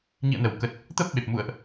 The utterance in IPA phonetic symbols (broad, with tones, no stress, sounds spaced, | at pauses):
ɲ ḭ˧˨ ə̯ n ə˧˩ w k ə˨˩ t̚ | t̪ ə˦˥ p̚ ɓ e˨˩ p̚ m ṵ˧˨ ə̯ ʔ